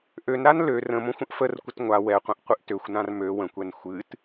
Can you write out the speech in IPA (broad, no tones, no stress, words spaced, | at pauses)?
ʔønɾan lø rə̃mõxʷ ə̃ʔfərkʷət ŋʷa wɛqʷə̃ʔ qʷɨʔtøxʷnãr mø wə̃kʷɛn xʷɨt